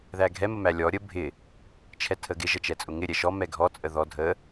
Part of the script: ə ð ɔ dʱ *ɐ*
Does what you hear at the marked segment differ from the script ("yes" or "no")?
yes